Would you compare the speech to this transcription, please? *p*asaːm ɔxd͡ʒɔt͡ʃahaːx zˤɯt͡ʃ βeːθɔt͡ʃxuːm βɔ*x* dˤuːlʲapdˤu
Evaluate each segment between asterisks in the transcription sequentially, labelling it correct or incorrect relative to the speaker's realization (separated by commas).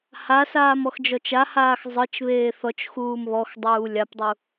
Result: incorrect, correct